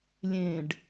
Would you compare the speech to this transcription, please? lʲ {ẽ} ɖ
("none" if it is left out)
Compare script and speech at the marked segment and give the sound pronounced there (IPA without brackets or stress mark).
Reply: ẽ